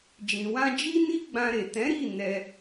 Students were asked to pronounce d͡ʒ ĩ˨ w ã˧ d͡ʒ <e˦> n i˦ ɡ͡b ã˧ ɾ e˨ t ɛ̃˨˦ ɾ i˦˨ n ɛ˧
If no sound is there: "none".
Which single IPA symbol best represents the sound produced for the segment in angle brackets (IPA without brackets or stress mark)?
i˦